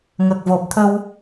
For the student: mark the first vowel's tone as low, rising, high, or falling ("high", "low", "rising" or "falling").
low